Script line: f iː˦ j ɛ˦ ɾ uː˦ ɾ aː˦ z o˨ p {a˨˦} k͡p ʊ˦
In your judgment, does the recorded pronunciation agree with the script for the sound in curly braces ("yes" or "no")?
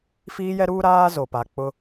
no